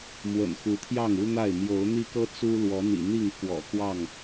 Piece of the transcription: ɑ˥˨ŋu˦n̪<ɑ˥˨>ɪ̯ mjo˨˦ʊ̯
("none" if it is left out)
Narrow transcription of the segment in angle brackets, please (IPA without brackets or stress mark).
a˥˨